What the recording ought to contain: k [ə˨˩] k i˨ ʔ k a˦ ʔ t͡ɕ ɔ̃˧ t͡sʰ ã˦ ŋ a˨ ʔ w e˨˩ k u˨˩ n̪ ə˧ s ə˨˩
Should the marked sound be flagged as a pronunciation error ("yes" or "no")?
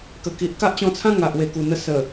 no